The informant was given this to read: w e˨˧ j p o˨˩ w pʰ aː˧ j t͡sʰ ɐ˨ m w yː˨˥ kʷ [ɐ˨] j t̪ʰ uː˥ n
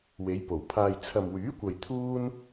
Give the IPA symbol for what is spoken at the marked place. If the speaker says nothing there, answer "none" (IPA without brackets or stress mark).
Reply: ɐ˨